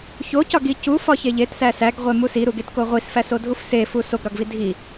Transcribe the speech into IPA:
çocɒɡi cufɒçe ʎetsæ sæɡʁʷemu siɾuɡetko ʁʷisfæsodʱuf sefu soɡɾɒɡvi dʱi

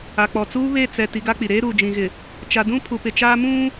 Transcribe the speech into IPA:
a˨k͡pɔ˨ t͡suː˦βe˦˨ t͡sɛ˨ ti˨˦ɡa˦k͡pi˨ ɾeː˦ɾuː˨d͡ʒĩ˨ɣɪ˨ | t͡ʃa˨dũ˦ pʰu˨pɪ˨t͡ʃaː˦ mũ˦

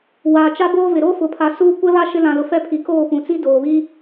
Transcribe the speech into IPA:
waː˨t͡ʃa˦boː˦vɪ˨ ɾo˦fʊ˨pʰa˨ suː˦ kʷɛ˦βa˦ ʃɪ˦lã˨lʊ˨ fɛ˦pʰi˨ koː˦˨pũ˨t͡si˦ doː˨ βi˦

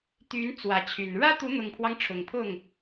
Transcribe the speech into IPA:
t̪y˨˦n t͡swä˨˦t͡ɕʰy˨˩n ɻä˦t̪u˨˦n̪ʊ˨˩ŋpʰwɑ˦ŋ ʈ͡ʂʰʊ˨˩ŋpʰʊ˥˨ŋ

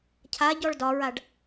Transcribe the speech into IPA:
cʰa ɟɔɭdɒɹaɖ

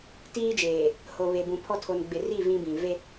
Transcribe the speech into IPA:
tiː˦d͡ʒeː˨ | ho˨βe˨bũ˨pʰɔ˦ tʰo˨nɡ͡bɪ˨ri˦˨ vĩ˦bĩ˨ ve˦

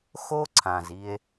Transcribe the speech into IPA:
xo˦ǀʰã˨z i˧e̯

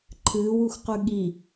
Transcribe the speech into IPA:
ǃʰɨːwuxqʉ ɠi

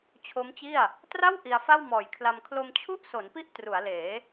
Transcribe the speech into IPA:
t͡ɕʰo˦˥mt͡ɕi˥˩a̯ | tra˥˩w ʔi˧a̯fa˥˩wmɔː˨˩jkʰla˧m kʰlo˧mt͡ɕʰu˥˩ʔso˩˦npi˦˥ʔ tru˩˦a̯leː˩˦

